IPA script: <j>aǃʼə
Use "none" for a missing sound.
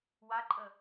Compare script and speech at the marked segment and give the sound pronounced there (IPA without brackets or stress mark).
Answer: w